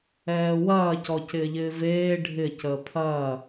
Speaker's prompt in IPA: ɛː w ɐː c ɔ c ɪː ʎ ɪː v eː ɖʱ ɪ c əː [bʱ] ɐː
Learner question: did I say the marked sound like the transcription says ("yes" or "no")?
no